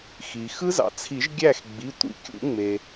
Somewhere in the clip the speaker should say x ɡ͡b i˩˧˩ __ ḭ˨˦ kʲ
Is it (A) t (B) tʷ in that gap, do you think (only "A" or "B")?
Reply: B